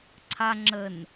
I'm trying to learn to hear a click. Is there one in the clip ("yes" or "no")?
yes